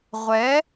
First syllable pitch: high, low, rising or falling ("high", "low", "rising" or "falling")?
rising